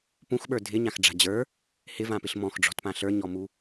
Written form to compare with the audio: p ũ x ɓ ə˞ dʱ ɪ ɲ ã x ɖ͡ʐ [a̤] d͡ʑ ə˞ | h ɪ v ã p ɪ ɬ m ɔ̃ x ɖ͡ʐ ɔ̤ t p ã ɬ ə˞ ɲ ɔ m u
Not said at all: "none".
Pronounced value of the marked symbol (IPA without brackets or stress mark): a̤